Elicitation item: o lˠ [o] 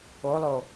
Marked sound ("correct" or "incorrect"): correct